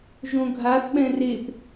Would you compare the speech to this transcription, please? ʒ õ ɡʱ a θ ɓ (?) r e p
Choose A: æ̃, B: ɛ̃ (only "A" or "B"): B